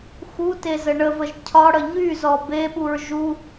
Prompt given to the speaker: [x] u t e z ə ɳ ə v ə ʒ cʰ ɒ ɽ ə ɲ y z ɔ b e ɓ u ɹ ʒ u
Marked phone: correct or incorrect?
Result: correct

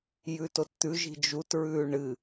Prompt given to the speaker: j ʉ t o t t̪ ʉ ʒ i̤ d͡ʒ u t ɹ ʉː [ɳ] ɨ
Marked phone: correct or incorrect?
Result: correct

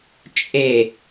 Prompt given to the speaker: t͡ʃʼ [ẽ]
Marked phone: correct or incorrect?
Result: incorrect: e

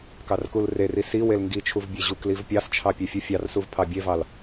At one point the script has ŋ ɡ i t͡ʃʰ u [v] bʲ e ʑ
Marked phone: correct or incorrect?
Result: correct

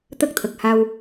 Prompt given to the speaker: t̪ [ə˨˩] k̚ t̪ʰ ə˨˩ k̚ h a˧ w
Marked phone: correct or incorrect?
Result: incorrect: ə˦˥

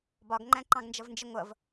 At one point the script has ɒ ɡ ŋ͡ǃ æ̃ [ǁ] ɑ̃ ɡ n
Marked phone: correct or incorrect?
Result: incorrect: ǃ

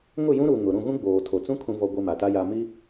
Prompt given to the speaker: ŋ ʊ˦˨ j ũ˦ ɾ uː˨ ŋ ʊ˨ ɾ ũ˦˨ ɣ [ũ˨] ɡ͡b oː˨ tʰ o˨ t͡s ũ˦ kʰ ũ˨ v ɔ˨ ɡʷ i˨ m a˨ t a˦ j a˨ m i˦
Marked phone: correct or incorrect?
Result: incorrect: ũ˦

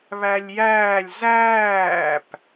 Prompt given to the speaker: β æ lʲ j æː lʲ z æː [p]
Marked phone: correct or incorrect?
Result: correct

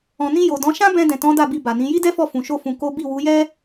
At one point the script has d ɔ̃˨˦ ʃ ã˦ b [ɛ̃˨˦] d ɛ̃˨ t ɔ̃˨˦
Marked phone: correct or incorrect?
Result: incorrect: ɛ̃˧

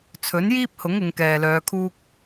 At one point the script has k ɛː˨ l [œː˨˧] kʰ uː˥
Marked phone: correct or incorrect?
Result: correct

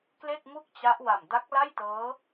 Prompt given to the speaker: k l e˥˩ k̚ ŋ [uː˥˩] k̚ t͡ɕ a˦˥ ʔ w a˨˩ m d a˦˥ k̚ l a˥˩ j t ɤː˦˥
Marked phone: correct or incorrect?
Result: incorrect: u˥˩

